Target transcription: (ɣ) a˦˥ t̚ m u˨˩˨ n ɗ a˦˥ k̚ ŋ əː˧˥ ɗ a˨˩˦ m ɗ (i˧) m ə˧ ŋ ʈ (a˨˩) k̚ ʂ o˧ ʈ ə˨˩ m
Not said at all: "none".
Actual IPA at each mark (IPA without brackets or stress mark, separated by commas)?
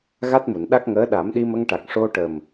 ɣ, i˧, a˨˩